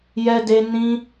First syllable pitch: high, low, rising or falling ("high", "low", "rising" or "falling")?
high